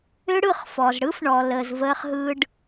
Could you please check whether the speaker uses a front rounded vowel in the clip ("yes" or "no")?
yes